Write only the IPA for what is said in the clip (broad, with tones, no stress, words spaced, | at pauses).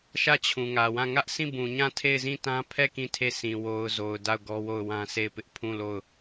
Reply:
ʃä˦˨t͡ɕʰũ˨ŋä˨wã˦˨ ŋä˦ʔsʰĩ˦˨ bũ˨ɲã˦˨ tʰe˦˨ɪ̯zĩ˦˨tã˦ pʰɛ˦˨ kĩ˦˨tʰe˦˨ sʰĩ˨wo˨ʊ̯zo˨ʊ̯ da˦˨ʊ̯ɡɔ˦wo˦˨ʊ̯ wã˦se˦˨ɪ̯pɪ˦ʔ pʰũ˦˨lo˦˨ʊ̯